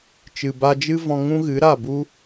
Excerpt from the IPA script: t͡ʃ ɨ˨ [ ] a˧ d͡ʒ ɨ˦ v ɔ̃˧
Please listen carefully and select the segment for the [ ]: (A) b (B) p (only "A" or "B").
A